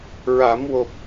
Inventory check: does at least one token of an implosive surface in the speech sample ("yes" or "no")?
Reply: no